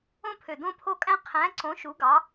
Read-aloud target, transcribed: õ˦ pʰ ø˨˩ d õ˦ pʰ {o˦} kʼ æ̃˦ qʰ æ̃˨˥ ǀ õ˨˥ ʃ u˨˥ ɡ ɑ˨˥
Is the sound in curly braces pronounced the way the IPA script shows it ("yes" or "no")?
yes